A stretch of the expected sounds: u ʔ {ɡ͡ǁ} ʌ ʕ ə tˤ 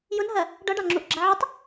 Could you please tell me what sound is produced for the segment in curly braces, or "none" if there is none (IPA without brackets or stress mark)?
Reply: ɡ͡ǁ